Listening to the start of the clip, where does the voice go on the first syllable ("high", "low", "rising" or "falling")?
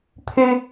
high